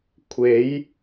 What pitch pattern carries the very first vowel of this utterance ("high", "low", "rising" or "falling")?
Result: rising